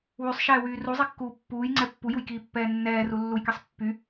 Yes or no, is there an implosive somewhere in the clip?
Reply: no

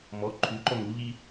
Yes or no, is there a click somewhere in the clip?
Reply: yes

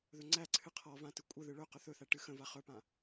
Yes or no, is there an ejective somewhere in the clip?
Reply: yes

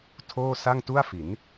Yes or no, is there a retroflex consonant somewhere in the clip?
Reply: no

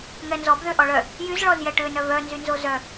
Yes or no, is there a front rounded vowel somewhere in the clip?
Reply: yes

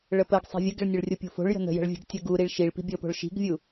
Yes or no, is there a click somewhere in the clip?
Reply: no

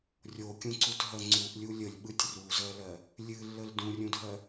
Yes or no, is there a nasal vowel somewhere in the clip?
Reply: yes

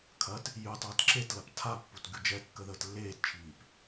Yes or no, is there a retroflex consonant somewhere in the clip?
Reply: no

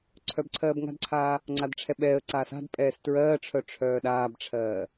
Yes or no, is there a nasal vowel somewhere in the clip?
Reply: no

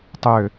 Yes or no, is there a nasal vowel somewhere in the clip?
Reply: no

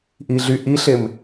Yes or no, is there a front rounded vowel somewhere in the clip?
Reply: yes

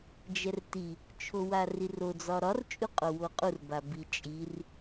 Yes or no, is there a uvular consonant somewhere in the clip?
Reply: yes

